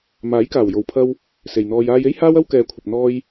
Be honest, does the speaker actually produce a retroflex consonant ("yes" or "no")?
no